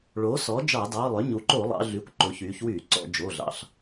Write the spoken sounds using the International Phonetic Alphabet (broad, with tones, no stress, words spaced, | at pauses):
ɭoː˩˥sɔ˩˥ d͡ʒɑ˧˩˧dɑː˩˧˩lˠø˩˥ ɲu˩˧ǃo˧˩˧lˠɑ̰˩˧ ɮy˩˥kʷǃo˩˧çyː˩˧çwyː˧˩˧ ǀɔ̰˧˩˧d͡ʒoː˩˧˩ɮɑ̰˩˧˩ɬ